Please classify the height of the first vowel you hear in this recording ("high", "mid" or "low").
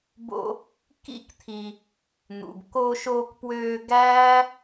mid